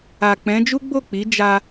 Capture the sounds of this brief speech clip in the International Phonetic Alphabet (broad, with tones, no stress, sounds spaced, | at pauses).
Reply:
a˨ k͡p ɛ̃˨˦ d͡ʒ u˦ ɡ͡b o˦˨ k͡p i˨˦ d͡ʒ a˦